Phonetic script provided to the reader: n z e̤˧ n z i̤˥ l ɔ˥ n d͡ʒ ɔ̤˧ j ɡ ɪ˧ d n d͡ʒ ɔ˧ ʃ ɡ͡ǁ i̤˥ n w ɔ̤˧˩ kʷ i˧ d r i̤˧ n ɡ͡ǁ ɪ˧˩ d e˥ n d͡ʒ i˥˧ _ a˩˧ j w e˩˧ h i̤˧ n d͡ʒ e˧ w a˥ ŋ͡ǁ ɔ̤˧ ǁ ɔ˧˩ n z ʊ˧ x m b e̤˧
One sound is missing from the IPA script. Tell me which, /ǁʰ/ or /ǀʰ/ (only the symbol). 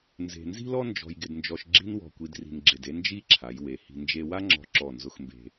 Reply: ǁʰ